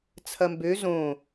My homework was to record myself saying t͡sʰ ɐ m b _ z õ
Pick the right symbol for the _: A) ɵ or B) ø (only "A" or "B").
B